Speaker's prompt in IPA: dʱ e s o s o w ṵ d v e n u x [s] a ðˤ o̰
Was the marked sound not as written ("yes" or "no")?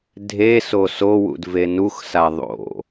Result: no